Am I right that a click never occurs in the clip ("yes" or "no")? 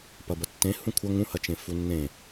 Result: yes